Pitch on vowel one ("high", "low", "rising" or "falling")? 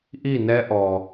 falling